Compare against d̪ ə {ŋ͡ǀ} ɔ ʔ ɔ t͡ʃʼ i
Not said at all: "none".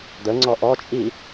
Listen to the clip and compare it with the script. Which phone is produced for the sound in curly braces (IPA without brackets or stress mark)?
ŋ͡ǀ